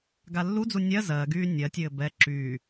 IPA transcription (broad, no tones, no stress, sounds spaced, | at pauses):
ɡ a lː u d͡z u nʲ ɜ z ɜ ɡ yː nʲ ɜ tʲ ɘː b ɛ ǁ yː